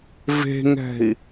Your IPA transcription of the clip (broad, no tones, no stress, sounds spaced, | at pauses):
v e̤ ŋ ɛ̤ i̯